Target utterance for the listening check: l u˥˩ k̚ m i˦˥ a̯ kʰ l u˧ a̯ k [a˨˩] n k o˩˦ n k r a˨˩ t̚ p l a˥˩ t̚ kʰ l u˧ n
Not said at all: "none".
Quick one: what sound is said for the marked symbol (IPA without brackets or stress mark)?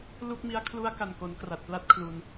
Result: a˨˩